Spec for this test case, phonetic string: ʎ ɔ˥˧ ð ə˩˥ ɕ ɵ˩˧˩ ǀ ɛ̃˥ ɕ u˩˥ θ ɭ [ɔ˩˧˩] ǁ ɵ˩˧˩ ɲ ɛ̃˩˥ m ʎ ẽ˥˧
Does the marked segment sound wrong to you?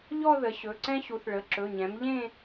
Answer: yes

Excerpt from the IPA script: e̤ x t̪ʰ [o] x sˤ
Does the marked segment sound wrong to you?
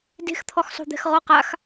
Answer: yes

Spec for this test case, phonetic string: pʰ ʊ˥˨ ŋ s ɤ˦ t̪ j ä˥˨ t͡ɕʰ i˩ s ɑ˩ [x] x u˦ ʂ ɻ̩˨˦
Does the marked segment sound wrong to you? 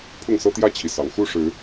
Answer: yes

